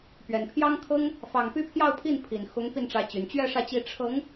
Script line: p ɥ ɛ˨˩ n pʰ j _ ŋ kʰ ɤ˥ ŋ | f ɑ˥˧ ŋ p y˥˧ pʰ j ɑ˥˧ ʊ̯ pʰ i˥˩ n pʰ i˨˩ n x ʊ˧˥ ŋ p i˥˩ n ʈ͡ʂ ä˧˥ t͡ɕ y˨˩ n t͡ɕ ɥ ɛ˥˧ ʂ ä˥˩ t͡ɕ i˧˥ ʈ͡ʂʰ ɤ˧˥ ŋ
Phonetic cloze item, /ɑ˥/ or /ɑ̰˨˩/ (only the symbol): ɑ˥